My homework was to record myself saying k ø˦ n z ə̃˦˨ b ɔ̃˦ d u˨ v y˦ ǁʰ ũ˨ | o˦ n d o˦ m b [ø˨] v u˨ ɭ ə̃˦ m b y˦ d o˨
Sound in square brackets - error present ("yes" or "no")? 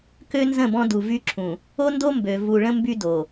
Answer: no